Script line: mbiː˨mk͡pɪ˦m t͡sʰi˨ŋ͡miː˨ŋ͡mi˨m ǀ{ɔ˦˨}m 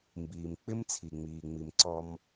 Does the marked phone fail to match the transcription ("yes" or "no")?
yes